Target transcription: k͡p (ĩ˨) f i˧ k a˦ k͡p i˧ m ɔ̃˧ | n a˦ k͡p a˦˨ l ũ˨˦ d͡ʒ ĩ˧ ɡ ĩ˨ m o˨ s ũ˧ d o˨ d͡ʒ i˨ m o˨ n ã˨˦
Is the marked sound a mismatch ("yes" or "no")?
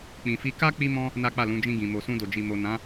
no